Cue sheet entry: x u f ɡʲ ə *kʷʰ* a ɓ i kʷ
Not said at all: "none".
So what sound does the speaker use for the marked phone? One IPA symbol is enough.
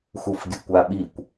kʷ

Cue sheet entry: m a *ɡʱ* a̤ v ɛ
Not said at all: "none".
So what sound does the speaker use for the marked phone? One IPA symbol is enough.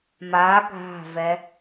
ɡʱ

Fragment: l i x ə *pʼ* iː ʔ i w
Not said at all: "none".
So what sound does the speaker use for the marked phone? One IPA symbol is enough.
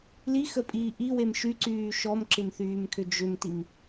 pʼ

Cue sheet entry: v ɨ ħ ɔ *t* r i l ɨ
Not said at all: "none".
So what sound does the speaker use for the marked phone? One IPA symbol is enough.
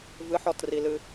t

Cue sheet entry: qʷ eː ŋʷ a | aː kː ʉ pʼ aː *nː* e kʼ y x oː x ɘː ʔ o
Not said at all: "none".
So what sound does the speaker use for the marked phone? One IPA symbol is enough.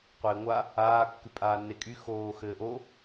nː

